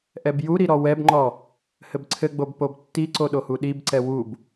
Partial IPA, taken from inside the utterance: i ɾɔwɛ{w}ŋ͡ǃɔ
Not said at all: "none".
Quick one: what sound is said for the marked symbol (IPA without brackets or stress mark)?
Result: b